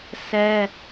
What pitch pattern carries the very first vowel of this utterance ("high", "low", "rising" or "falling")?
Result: high